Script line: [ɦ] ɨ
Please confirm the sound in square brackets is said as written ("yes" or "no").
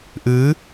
no